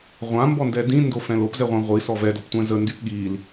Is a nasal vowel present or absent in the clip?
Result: present